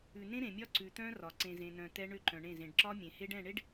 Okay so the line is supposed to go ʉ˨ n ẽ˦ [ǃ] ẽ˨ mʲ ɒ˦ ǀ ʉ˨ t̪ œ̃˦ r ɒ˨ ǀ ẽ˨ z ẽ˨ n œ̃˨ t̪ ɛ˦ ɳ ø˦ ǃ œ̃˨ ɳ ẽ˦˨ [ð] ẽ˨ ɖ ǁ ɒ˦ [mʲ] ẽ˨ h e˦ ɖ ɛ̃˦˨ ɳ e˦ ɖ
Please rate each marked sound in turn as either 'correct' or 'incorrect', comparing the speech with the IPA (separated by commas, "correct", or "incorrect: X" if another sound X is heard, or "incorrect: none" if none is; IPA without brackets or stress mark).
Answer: incorrect: ɾ, incorrect: z, correct